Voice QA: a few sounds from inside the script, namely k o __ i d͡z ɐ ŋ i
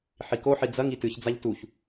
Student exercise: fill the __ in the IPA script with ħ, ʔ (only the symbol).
ħ